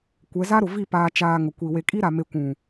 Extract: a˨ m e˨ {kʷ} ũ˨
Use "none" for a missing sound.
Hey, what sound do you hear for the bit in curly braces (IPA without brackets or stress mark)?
kʷ